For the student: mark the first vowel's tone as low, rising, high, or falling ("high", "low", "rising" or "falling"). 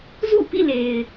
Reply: falling